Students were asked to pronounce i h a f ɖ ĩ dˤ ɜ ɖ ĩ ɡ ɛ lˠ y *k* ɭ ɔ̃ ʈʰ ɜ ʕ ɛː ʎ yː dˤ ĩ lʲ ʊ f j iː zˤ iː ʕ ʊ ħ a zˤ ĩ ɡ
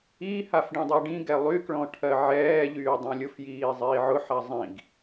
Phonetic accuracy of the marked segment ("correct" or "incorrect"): correct